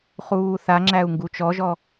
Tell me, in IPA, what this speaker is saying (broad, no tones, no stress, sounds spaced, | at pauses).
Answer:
χ uː θ a ŋ͡ǁ æ u̯ ŋ ɡ u t͡ʃ ɔ ʒ ɔ